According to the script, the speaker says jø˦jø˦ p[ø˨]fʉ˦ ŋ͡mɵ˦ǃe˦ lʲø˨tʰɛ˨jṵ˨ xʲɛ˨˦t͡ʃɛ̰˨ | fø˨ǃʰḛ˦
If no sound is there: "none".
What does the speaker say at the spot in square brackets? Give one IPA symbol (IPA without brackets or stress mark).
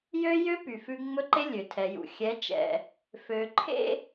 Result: y˨